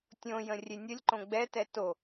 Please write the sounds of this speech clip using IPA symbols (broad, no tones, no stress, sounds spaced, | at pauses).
tʲ õ j ə̃ rʲ e nʲ ə lʲ ǃ õ ɡ͡b ɛ t ɛ t o